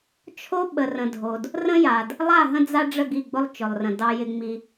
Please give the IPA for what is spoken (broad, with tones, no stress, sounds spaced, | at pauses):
t͡ʃʰ o˦ ɓ ə˨ r ə̃˨ dʱ o˨ d | r ə̃˦ j a˨ d | lˠ a˦˨ ɦ ə̃˦ d͡z a˦ ɖ͡ʐ ə˦˨ ɡ i˦˨ ɡ͡b ʊ˦ lˠ t͡ʃ ʊ˨ lˠ r ə̃˨ d ɑ˦ j ɪ˦ ŋ͡m i˦